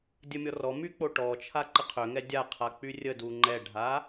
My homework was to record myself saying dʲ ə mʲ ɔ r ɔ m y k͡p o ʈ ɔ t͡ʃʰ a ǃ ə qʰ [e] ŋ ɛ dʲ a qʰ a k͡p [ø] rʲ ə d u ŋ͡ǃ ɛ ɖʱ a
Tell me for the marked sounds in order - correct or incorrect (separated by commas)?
incorrect, incorrect